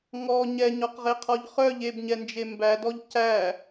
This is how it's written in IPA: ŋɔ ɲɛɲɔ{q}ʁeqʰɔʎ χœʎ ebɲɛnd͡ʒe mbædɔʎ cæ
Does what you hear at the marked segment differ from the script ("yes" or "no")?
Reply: no